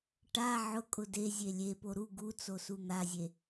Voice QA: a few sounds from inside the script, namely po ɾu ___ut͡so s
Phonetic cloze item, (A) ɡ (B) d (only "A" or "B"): A